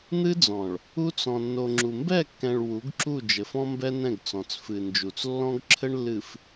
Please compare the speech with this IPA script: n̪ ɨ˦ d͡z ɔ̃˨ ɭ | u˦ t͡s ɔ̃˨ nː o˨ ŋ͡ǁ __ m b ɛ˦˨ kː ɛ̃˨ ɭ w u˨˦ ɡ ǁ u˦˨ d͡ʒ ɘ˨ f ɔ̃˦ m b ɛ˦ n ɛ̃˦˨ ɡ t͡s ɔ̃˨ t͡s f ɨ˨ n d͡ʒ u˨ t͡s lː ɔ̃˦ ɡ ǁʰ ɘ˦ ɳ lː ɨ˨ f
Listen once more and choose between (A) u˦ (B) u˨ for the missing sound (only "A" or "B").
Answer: B